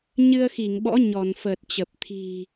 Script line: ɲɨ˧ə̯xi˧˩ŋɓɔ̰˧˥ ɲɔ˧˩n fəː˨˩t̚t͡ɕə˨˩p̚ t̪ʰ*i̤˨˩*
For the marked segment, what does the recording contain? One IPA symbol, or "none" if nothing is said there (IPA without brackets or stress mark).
i̤˨˩